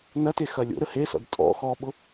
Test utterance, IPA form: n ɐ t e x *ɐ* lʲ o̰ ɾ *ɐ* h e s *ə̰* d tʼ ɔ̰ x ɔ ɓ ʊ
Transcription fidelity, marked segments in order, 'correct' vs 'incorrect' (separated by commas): correct, incorrect, incorrect